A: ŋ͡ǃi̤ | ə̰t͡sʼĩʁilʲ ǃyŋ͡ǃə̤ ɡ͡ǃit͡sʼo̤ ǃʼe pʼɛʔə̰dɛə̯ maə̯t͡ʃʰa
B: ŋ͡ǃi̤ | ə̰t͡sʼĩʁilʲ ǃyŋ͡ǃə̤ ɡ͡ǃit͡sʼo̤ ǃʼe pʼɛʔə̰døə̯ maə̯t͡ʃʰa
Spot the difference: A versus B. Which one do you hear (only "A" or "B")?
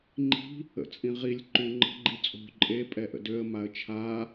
B